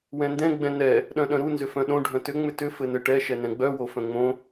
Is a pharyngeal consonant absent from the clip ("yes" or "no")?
yes